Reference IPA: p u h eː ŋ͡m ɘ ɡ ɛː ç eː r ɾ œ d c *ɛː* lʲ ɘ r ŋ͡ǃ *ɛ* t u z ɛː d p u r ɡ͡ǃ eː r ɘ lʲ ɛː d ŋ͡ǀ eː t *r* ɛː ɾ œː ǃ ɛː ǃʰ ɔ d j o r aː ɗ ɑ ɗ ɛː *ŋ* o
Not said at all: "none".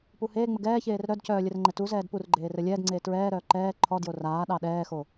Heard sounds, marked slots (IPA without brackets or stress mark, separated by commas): œː, ɛ, ɹ, x